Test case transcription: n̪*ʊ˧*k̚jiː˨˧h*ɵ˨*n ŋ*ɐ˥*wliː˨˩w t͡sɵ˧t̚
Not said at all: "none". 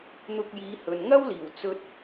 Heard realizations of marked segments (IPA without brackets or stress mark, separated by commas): ʊ˧, ɵ˨, ɐ˥